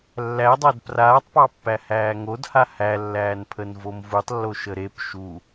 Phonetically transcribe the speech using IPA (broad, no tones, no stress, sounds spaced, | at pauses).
lː æ dˤ æ d p r aː tˤ p ɑ pː æ h æː ŋ o d h a h æ lː æː n pʰ ə n v o m v u tˤ lː o ʃ ə ɾ e p ʃ u